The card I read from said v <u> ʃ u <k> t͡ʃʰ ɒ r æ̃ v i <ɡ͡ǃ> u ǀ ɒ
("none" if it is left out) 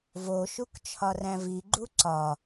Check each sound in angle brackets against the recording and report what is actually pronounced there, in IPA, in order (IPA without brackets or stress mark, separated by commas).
o, k, ɡ͡ǃ